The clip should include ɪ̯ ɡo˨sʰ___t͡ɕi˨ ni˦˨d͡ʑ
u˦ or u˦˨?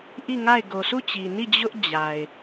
u˦˨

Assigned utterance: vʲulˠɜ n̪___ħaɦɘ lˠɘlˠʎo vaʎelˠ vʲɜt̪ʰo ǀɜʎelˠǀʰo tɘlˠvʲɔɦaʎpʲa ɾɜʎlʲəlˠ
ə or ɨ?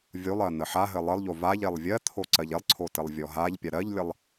ə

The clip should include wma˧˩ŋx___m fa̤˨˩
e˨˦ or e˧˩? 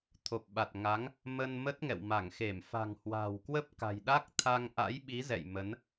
e˧˩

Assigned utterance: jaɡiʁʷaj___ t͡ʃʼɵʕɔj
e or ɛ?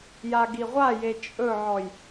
e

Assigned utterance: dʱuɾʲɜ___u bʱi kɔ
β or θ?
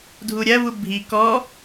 β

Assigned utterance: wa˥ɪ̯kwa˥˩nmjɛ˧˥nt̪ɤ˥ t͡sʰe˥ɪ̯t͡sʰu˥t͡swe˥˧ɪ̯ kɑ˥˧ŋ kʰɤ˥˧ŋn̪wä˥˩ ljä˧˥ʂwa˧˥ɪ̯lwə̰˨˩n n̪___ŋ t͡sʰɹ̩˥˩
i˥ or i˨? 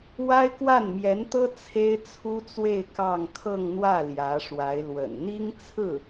i˥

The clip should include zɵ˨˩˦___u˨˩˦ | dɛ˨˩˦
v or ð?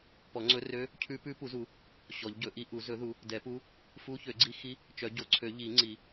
ð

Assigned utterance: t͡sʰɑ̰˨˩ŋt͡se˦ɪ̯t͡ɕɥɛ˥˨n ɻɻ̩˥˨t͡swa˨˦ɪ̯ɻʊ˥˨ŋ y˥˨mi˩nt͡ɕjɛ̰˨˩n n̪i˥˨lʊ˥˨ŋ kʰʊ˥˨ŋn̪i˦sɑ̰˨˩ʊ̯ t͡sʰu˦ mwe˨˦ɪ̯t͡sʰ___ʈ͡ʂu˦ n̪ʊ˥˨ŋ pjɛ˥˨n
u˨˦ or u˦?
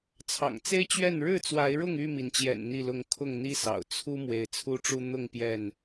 u˦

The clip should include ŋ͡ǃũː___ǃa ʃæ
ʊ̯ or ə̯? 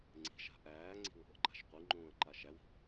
ə̯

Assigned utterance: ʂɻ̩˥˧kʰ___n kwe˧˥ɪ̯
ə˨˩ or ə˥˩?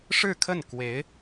ə˥˩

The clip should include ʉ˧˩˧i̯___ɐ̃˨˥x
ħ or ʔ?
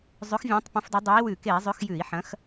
ħ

